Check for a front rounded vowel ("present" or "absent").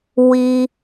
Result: absent